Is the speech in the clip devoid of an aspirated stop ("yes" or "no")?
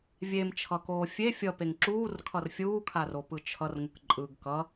no